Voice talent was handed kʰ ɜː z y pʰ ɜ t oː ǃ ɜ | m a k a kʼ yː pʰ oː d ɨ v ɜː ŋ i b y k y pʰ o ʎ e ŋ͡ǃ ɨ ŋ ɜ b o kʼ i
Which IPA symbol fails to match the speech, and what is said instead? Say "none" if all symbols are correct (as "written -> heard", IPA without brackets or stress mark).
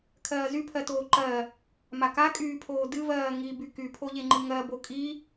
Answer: none